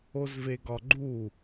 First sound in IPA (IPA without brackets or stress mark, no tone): o